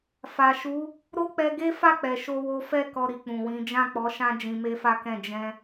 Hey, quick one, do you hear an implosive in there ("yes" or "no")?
no